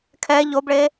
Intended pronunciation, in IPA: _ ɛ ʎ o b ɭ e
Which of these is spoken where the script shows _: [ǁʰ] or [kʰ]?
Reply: kʰ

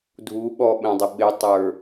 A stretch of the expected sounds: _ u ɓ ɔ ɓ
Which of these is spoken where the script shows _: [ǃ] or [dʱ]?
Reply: dʱ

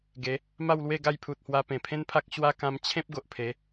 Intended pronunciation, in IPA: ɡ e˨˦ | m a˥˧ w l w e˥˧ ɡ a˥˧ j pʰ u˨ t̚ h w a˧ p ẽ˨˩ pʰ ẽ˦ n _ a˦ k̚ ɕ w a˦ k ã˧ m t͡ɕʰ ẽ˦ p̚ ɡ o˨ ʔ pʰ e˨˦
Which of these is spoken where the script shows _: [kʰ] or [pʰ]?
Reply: pʰ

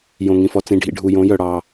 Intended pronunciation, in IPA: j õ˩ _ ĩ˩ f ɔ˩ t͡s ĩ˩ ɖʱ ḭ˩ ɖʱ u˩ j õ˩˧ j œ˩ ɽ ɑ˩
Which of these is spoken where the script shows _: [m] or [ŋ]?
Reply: ŋ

